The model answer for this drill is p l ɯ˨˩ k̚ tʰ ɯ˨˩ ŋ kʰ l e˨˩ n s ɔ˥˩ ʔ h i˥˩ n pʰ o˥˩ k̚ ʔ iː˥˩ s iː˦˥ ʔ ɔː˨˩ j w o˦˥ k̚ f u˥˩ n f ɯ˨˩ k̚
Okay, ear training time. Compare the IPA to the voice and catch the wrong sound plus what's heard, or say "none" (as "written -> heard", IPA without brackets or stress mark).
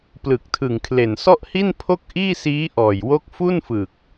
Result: none